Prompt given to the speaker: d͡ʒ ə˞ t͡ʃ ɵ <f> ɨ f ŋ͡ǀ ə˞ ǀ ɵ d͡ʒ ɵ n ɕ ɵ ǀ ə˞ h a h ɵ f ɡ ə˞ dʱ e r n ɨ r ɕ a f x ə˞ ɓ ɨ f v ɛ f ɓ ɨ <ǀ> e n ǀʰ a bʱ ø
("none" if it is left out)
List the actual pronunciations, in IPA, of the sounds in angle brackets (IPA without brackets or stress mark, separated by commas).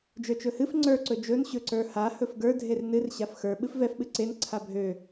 h, ǀ